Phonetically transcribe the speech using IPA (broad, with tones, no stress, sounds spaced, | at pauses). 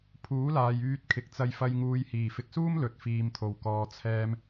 pʰ uː˨˥ l aː˨ j yː˧ t̚ kʰ ɪ˨ k̚ t͡s ɐ˧ j f ɐ˧ j ŋ uː˨ j h iː˨˩ f ɪ˨ k̚ s uː˥ m l ɵ˨ t̚ f iː˨ m t̪ʰ o˨˩ w k ɔː˨ t͡sʰ ɛː˧ m